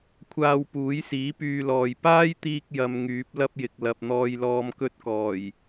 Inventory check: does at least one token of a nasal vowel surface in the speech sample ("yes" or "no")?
no